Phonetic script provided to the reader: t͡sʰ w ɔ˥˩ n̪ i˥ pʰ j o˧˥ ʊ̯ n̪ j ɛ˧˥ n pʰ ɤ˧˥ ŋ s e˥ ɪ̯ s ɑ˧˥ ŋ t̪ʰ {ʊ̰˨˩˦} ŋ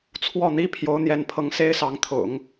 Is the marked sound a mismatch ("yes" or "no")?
no